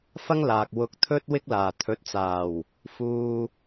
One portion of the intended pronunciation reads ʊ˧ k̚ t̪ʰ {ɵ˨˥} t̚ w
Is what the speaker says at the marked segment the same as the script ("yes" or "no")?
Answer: no